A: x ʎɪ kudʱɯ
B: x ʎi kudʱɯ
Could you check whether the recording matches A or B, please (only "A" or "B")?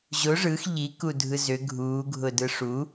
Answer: B